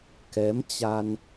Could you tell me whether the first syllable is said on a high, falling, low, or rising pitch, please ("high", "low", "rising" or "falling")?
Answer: rising